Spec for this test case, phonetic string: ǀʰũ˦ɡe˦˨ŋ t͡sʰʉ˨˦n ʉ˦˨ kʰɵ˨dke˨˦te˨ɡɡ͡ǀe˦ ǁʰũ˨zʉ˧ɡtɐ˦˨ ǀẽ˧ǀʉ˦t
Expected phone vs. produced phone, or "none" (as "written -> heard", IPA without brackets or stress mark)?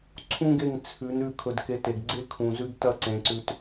ǁʰ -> kʰ